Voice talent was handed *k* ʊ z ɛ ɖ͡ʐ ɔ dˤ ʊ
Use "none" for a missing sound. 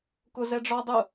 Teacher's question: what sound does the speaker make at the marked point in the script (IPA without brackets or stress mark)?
k